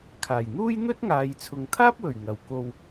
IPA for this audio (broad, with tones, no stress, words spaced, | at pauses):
kʰaː˨˩jn̪uː˥jn̪ɵ˥t̚ŋaː˨j t͡sʰʊ˨ŋt̪ʰaː˥p̚wɵ˨˩ɥ ŋɐ˨˩w ko˨w